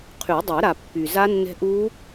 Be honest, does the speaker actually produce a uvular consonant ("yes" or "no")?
yes